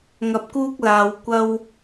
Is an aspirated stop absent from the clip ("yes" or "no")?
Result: yes